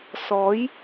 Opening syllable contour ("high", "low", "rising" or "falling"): rising